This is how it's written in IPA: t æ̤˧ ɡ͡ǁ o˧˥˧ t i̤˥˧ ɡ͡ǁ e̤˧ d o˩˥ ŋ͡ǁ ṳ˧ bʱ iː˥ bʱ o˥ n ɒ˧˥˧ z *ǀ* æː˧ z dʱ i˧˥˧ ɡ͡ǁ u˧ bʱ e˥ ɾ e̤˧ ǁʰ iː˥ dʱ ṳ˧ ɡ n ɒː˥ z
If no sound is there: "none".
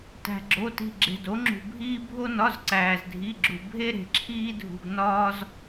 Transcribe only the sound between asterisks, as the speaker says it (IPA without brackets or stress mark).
ǀ